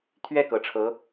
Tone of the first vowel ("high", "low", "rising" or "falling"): falling